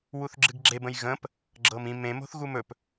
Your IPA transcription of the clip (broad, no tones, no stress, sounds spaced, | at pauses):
w u θ ɡ͡ǁ ɨ ɡ ɡ͡ǁ e b ə̃ j ɣ ə̃ p | ɡ͡ǁ ɤ m ĩ m ẽ m o̤ θ ɣ u m ɵ p